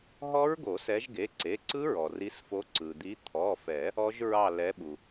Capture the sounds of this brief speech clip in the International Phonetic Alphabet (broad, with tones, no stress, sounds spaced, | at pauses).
ɦ ɔ˦˥ ɹ ɡ o˨˩˦ s ɛ˨˦ ʒ ɡ e˩˧˩ ǀ e˩˧˩ ǀ ɯ˦˥ ɹ ɔ˩ r i˨˦ s f o˨˦ ǀ ɯ˩ d̪ i˨˦ t̪ʰ ɔ˩˧˩ f ɛ˨˩˦ | ɔ˦˥ ʒ ɹ ɑ˦˨ l ɛ˨˦ ɓ u˩